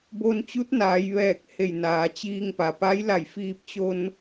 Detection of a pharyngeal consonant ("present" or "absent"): absent